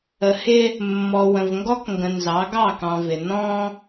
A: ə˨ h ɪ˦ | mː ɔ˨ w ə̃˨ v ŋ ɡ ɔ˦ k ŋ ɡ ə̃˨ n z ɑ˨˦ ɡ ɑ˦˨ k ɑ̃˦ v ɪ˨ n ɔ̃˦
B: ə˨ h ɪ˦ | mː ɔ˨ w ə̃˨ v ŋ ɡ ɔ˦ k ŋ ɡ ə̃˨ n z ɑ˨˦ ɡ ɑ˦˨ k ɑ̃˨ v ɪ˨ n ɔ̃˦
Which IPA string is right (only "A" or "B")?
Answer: B